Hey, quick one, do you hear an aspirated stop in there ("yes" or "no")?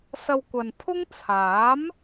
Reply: yes